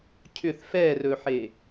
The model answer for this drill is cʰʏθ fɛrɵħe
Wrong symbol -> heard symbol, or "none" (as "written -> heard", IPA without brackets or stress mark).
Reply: none